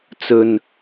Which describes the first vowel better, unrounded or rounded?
rounded